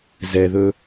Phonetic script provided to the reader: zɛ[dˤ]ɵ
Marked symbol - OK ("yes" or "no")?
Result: no